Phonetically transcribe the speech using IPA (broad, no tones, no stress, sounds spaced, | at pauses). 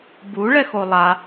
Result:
b u ɭ ɛ x o lˠ a